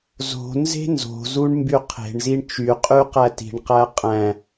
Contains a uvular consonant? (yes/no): yes